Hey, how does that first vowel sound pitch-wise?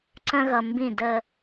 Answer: high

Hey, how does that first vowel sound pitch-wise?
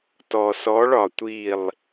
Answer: low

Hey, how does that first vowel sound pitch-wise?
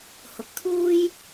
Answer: rising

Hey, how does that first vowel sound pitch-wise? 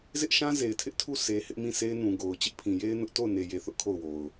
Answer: high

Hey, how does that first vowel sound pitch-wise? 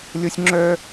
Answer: high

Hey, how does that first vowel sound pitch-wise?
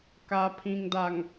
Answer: low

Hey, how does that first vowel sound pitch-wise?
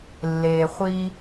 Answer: low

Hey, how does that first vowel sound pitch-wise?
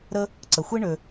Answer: high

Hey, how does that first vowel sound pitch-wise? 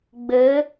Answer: rising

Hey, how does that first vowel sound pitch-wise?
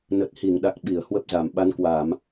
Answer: low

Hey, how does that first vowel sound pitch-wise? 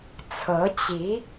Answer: rising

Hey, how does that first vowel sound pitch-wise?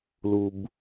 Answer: low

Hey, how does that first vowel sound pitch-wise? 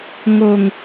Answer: low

